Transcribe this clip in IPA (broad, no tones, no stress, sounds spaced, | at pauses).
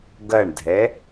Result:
ɡ ɐ ɳ dʱ ɛ